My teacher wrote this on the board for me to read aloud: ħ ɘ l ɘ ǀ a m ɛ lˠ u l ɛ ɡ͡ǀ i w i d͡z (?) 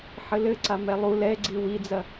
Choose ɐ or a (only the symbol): ɐ